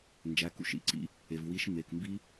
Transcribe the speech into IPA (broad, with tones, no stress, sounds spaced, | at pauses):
n d͡ʒ æ˩˧˩ k ṵ˦˨ ʃ ḭ˨˦ ǀ ḭ˦˥ | e˩ v w i˨˦ ʃ m e˩˧˩ k m b i˦˥